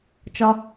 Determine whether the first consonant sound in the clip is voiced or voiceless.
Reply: voiceless